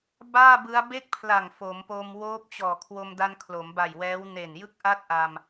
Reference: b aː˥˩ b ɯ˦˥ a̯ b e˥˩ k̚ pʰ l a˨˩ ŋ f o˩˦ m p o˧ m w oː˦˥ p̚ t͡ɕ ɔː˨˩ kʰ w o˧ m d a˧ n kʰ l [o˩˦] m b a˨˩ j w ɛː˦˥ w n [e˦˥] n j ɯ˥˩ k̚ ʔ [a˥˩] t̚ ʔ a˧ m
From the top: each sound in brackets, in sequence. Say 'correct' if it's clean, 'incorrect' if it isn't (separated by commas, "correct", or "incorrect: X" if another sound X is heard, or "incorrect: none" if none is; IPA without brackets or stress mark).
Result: correct, incorrect: e˨˩, correct